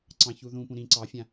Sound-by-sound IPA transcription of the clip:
ǀ ɑ̃ ç u ð ũ p ũ ɾ ĩ ǀ ɑ fʲ ã

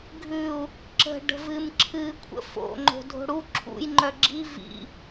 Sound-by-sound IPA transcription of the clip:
ɡʱ ʉ u̯ | ǁ ə̤ ɖ ə̤ v ɨ m ǁʰ ɨ kʷʰ ə̰ f o̰ ŋ͡ǃ o̤ dʱ o̤ ɽ u ǁʰ ṵ j ŋ͡ǃ œ ɡ͡ǁ i v ḭ

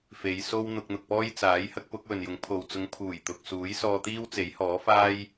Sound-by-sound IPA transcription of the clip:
f e˨˧ j s o˥ w n̪ ʊ˧ k̚ n̪ ʊ˨ k̚ p ɔː˥ j t͡s aː˨˥ j h ɐ˥ k̚ p ʊ˨˥ k̚ w ɵ˨ n j ʊ˨˥ ŋ pʰ o˨ w t͡s ʊ˨˧ ŋ pʰ uː˨˩ j t̪ ʊ˨ k̚ s uː˨˥ j s ɔː˧ t̪ iː˥ w t͡s e˨˥ j h ɔː˨˥ f aː˥ j

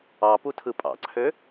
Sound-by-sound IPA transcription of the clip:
ɑ p u tʰ ɯ pʼ ɑ̰ ǀʰ ø

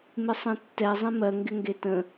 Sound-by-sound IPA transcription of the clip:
m ɪ sˤ ẽ tː ɛ zˤ ĩ m ɜ ŋ ɡ ɪ ŋ ɡ e t ə̃

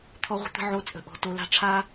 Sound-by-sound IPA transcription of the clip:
t̪ʰ ɔ˧ ʁʷ ə̤˧ t̪ ə̤˧ ʕ o˧ t͡sʼ ə̤˨ ʔ ɔ̤˨ t o˧ l a̤˦ ʈ͡ʂʰ a˦

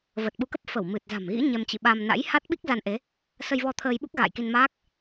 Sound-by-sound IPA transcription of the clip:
v ə˨˩ t̚ ɓ u˨˦ k ə˦˥ p̚ f ə˧˩ w m ɨ˨˩ t̚ z a̤˨˩ m ɣ ḭ˧˥ ɲ ɛ˧ m t͡ɕ ḭ˧˨ ɓ a˧ m n a̰˧˥ j h a˦˥ t̚ ɓ i˦˥ k̚ z a˧ n ʔ e˨˦ | s ə˧ j v ɔ˧ t̪ʰ əː˧ j ɓ u˦˥ k̚ ɣ a̰ː˧˨ j k i˧ n m aː˦˥ k̚

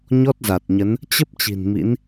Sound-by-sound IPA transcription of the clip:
ɲ ɔ˦˥ t̚ z a˨˩ t̚ ɲ ə˨˦ n | t͡ɕ ə˦˥ p̚ t͡ɕ i̤˨˩ n m ḭ˧˥ n

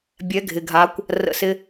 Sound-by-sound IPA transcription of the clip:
bʲ ɛ˨˦ ɡʱ ɪ˨ ɡʱ a˨˦ kʷ | r ə̰˦˨ s ɪ˦

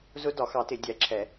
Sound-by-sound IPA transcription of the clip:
z ʊ˧˥ d ɒ˨˩˦ x ɑ˨˩˦ t ɪ˨˩˦ dʲ æ˨˩˦ ǁʰ ɛ˨˩˦

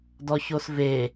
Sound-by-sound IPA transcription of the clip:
d ɔ ç o s v e

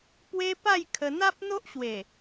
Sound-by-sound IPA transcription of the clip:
p w e˧ p a˥˧ j kʰ ə˧ n̪ a˦ p̚ n̪ o˦ ʔ ɕ w e˨˩

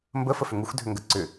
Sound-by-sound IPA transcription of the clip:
m b ə f ə f ʏ ŋ u x dʱ ʏ ŋ ɡ ə ǀ ʏ

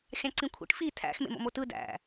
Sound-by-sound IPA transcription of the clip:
xʲ ɑ̃ ǀ ĩ kʷʰ ḭ ʈ f i tʰ æ̰ x m ḛ m o̰ m o t ɯ d æ̰

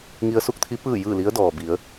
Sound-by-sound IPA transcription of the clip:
ŋ i˧ ə̯ s u˥˨ k̚ t̪ʰ i˧˥ p ɯː˥˨ j ɯː˥˨ l i˧˥ ə̯ d ɔː˩ b i˩˧ ə̯

